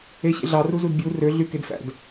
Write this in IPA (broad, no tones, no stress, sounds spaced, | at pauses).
e ɕ ḛ ɮ ɑ r u z u d bʲ u r ø ɮ y k e d f æ̰ d